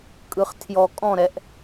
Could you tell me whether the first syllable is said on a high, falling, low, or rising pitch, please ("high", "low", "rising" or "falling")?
low